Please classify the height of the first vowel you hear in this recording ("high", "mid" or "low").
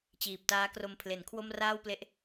high